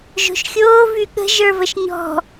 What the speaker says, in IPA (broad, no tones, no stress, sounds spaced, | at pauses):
ʒ o̤ ʃ xʲ oː v y ɠ ə̤ ʒ ə˞ v ə ʃ ɲ ɔ̤